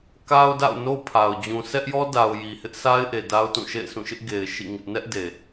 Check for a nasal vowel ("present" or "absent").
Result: present